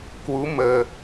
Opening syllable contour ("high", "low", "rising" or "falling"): rising